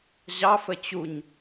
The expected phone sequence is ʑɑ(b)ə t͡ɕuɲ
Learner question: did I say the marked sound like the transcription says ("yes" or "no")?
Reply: no